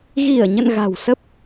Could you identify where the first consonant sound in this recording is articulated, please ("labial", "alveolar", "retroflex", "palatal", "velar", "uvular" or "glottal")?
velar